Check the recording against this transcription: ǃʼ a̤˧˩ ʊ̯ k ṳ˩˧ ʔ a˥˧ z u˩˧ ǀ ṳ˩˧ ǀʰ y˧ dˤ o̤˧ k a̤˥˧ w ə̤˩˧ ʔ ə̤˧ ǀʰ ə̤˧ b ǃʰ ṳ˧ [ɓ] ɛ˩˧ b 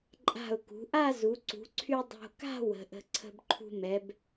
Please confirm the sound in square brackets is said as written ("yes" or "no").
no